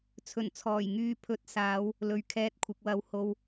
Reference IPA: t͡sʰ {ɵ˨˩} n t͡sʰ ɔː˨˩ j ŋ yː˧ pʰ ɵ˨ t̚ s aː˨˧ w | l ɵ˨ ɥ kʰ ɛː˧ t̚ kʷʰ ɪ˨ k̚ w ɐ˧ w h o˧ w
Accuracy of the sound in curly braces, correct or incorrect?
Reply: correct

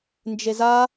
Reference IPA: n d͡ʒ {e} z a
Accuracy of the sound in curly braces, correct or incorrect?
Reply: correct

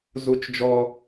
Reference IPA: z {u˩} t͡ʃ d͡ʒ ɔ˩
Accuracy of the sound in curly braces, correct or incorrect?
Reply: correct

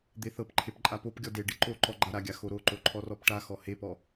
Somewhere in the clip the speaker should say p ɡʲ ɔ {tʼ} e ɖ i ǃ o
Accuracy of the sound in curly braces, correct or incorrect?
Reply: incorrect: d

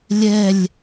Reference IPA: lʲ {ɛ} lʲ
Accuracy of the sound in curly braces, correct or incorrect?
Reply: correct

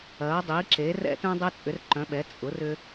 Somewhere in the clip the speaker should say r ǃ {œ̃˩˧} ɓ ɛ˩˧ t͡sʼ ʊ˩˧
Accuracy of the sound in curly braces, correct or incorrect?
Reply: correct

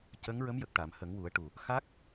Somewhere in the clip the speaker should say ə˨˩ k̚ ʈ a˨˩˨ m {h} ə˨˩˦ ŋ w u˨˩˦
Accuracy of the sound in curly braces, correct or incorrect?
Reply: correct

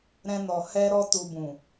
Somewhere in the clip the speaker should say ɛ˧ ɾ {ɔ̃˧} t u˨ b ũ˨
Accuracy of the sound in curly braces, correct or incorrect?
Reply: incorrect: ɔ˧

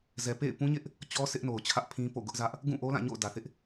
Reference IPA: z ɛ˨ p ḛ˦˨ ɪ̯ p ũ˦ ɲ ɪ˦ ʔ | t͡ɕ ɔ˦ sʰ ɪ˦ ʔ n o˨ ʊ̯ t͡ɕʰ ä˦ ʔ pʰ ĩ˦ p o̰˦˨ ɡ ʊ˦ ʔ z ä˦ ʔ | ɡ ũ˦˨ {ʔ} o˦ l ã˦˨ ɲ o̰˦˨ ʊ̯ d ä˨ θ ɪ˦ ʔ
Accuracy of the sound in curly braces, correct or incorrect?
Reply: correct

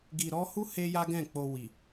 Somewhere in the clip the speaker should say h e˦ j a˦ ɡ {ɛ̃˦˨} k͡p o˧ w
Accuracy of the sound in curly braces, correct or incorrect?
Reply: correct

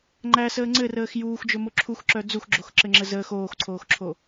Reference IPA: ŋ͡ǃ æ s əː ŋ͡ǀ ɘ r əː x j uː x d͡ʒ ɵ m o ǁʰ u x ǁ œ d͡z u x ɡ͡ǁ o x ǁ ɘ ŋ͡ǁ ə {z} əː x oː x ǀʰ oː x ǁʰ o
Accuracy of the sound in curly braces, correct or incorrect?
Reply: correct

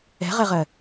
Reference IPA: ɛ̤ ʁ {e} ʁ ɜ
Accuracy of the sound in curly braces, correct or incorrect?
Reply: incorrect: ɛ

